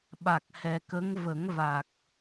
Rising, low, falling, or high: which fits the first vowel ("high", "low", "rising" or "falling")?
low